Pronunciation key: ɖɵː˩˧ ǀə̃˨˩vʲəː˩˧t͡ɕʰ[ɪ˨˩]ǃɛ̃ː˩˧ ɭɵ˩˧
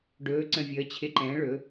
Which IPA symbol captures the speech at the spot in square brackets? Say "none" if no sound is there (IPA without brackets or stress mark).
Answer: ɪ˨˩